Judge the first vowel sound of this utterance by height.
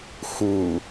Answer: high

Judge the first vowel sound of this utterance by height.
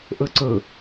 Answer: mid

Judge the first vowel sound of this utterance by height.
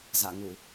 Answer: low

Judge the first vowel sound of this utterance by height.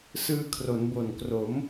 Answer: high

